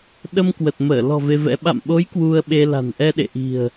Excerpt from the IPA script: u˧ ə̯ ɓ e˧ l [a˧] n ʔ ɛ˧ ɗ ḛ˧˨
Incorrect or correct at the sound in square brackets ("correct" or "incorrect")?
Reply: incorrect